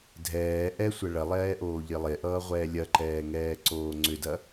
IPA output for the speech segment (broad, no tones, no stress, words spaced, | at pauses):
dʱɛː ʔɛsʷɐ ɭɐlˠɛːʔoː ʎɪlˠeʔʌːʁʷɛː lʲɐǃɛːŋɛː ǀoːŋ͡ǀʏdɐ